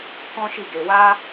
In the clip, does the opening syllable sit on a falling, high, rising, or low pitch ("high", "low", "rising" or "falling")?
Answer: high